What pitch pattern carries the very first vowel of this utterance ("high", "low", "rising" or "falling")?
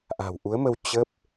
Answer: low